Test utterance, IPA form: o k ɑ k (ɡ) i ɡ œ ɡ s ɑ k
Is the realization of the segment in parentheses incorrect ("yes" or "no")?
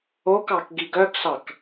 no